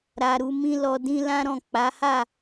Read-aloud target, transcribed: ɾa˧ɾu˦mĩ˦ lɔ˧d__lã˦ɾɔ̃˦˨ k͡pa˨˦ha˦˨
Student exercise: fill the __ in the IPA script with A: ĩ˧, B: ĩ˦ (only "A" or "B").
B